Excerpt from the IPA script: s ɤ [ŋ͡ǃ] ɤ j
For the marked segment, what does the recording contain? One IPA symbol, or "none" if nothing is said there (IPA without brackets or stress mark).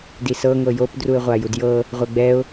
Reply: ŋ